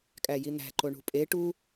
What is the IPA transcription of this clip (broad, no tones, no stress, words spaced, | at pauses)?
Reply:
kʼæjin̪æ̤ǃo ɳṳpʼe ʈu